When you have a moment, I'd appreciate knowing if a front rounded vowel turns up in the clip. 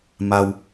no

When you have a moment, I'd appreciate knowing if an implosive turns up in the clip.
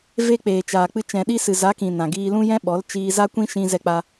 yes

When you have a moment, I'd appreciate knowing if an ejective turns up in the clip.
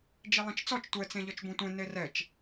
no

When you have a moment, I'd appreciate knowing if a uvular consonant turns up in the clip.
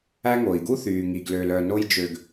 no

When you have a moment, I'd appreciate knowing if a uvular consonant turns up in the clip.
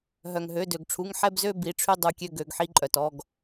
no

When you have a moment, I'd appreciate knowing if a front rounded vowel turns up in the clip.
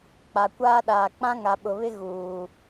no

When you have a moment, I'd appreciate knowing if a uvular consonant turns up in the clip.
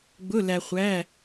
yes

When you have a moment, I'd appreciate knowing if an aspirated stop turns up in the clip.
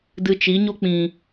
no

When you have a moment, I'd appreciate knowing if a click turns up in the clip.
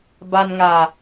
no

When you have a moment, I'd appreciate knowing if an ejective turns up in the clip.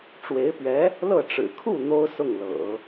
no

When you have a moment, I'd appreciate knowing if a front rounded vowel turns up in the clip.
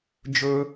no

